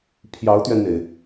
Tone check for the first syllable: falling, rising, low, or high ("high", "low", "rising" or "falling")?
rising